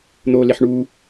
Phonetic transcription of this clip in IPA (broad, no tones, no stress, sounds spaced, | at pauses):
n̪ oː l e ħ ɳ uː